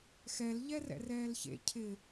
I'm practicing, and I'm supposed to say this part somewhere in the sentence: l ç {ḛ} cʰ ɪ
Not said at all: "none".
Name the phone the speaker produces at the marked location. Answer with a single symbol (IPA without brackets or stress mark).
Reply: ḛ